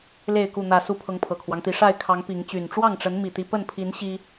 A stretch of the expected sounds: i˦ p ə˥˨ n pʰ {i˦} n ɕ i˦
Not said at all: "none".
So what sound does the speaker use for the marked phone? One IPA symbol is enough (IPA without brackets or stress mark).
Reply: i˨˦